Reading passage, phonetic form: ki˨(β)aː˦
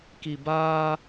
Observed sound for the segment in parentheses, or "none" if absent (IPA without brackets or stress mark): b